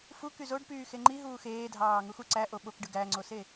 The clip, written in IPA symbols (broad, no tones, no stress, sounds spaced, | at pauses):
f u k y z o ɖ p yː x e ŋ͡ǃ i ɦ uː x eː dʱ ɑː ŋ u x u ǀ æ ʔ o ɓ o k ɖ ɯ ɡ æ ŋ͡ǀ o s e